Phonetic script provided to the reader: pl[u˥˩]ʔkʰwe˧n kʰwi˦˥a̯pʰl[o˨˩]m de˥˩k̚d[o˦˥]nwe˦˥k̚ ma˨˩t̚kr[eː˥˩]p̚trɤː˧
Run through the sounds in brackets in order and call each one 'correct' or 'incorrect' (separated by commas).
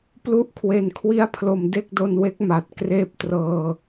correct, correct, incorrect, correct